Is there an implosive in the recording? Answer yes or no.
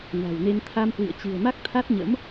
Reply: no